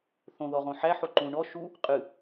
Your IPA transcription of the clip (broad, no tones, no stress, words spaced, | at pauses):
θõ ðɔʁõħæħo ǃũ ɳɔ ʃu | qʼɨ